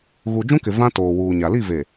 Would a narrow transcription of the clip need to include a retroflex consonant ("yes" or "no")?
no